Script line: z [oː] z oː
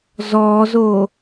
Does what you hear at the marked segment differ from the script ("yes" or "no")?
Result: yes